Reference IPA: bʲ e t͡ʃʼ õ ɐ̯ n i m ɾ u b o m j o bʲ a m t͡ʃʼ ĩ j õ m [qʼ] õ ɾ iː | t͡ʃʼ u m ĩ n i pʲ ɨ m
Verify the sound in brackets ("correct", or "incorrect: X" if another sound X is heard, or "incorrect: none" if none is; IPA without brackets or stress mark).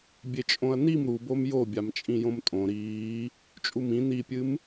incorrect: tʼ